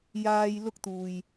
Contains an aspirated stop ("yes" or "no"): no